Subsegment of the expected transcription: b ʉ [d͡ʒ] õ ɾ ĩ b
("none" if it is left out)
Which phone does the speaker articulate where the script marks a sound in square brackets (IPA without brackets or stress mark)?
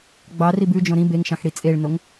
d͡ʒ